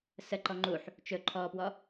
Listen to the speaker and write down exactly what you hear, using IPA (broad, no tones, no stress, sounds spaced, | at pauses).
s ə ǃ ɔ ŋ͡ǃ u ħ | t͡ʃ ɵ ǃʰ ɔ p w ɔ